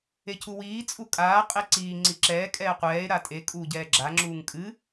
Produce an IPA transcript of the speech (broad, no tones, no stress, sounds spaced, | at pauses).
e cʰ u w iː t͡sʼ u kʼ aː qʼ e ǀ iː ŋ͡ǀ i ǁ ɛː kʼ ɛː qʷ ɛː e̯ ɾ a tʼ e kʼ uː ɟ ɛː ɡ͡ǁ a ŋ͡ǁ uː ŋ kʼ ɨ